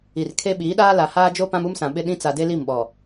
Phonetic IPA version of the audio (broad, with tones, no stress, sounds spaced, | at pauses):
i˨ r kʰ e˦ ɓ iː˨˦ ɗ aː˦ l a˨ h aː˦ d͡ʒ o˦ p ã˦ m u˦ m s ã˨ ɓ ɪ˦ ɗ ĩ˦ t͡s a˨ d e˦ l i˦˨ m ɓ ɔ˨